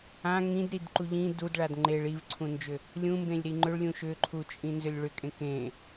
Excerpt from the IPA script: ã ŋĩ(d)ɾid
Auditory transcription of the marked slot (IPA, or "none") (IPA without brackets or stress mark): d